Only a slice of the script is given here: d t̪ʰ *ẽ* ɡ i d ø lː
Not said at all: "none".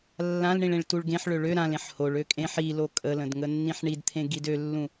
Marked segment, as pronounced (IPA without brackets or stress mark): ẽ